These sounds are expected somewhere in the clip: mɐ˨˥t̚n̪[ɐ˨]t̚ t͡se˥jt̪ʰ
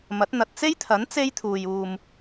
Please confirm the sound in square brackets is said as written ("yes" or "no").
yes